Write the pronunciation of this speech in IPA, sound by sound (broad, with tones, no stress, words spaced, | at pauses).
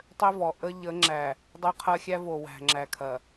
tˤø˦vɔ˨ ʔə˦ ʎə˨˦ŋ͡ǁæ˨ | dˤø˦qʰɐ˦xʲæ˦vo˨ wæ̤˨ ŋ͡ǁæ˨ kʰɐ˨